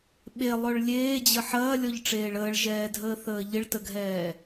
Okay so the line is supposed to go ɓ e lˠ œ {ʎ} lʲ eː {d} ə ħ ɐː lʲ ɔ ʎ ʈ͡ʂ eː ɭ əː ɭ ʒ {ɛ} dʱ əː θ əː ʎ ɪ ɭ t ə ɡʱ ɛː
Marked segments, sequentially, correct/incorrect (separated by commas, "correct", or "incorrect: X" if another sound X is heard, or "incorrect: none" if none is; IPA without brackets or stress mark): incorrect: ɭ, incorrect: d͡ʑ, incorrect: ɛː